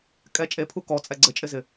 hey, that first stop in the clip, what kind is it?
ejective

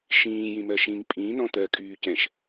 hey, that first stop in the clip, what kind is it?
ejective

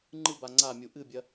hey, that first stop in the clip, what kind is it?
click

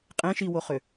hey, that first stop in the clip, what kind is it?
ejective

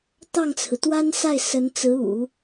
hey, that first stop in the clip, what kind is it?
plain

